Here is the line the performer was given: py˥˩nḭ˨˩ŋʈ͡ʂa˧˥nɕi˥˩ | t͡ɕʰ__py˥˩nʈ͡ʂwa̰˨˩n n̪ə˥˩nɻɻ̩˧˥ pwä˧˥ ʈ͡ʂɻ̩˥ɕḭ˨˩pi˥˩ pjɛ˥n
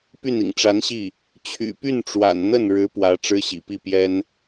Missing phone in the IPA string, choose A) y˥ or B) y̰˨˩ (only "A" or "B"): B